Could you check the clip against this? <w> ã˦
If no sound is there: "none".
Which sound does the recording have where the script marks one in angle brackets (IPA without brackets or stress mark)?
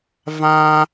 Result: v